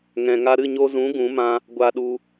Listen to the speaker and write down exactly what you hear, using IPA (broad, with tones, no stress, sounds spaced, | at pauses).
ŋ ɛ̃˨ ŋ a˧ ɾ ɨ˦˨ ɲ o˧ z ũ˨˦ ɡ ũ˨˦ m ã˧ | ɡʷ a˧ ɗ u˧